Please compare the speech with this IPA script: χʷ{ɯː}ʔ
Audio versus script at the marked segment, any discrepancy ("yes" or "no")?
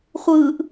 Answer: no